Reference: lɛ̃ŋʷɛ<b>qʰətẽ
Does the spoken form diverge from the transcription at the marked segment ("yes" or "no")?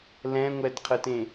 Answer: yes